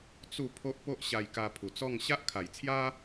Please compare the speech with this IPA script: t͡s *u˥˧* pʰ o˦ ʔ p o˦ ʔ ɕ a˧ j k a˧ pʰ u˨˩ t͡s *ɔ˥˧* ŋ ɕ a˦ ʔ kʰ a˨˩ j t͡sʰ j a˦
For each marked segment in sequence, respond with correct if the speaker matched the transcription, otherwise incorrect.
correct, correct

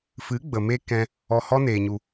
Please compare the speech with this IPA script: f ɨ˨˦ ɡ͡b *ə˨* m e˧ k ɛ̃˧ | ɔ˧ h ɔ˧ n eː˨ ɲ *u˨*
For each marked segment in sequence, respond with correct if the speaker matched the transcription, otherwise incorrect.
correct, correct

